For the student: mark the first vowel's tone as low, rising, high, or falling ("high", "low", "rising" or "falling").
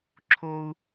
high